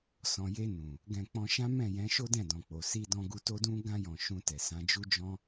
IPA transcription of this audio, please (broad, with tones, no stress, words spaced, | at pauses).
sɔ̃˨je˧nũ˨ | ɡɛ̃˧k͡pɔ̃˧ ʃã˦mɛ̃˦˨jɛ̃˨˦ ʃo˦dɛ̃˦˨dɔ̃˨k͡po˨ si˧dɔ̃˧ɡu˧ to˧dũ˧ɡã˧jɔ̃˨ ʃũ˧tɛ˨sã˨˦ d͡ʒu˦d͡ʒɔ̃˦